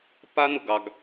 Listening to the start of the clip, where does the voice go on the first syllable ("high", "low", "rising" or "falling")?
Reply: high